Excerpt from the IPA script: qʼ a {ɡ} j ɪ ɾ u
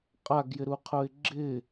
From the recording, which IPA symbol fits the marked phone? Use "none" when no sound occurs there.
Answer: ɡ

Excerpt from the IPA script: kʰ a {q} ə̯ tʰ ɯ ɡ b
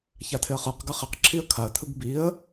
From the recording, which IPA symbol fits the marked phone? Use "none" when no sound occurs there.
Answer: none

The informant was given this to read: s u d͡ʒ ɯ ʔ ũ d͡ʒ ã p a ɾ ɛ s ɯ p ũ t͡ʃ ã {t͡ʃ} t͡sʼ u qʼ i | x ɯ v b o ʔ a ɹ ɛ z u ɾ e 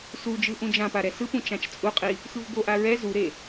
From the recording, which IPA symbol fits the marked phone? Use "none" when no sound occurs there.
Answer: t͡ʃ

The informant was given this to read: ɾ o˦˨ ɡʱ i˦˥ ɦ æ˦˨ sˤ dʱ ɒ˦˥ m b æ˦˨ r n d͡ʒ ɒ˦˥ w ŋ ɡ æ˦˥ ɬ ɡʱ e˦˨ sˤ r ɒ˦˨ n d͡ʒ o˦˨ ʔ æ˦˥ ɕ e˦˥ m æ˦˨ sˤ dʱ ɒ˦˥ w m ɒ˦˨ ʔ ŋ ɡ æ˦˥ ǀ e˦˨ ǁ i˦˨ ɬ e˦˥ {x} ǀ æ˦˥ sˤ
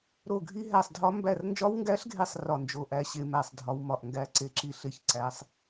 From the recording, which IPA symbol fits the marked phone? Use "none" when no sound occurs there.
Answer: ç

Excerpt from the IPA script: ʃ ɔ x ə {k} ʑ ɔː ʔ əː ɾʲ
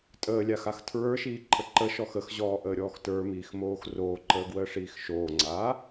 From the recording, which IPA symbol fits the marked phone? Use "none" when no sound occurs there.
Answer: x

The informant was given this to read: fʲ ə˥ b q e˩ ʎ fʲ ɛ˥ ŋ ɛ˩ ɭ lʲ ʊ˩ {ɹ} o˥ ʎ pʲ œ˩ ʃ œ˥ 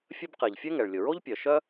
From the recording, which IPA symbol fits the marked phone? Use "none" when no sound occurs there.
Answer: ɹ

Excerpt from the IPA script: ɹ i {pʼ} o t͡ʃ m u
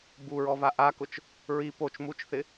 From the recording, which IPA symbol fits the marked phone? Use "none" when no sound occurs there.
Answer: p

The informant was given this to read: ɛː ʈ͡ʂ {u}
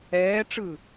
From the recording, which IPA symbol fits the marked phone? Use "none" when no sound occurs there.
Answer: ɯ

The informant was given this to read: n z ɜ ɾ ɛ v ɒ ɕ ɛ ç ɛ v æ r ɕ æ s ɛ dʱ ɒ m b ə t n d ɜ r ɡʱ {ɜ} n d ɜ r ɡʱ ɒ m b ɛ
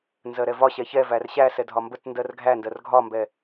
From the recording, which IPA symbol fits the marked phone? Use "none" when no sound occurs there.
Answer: æ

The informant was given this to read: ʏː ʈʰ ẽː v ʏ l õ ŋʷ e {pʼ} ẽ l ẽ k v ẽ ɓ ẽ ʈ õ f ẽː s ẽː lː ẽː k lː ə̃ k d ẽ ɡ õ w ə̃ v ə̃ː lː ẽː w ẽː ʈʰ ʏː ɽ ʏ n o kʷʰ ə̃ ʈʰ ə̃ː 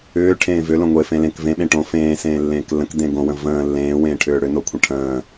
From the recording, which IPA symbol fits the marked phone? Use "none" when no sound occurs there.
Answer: f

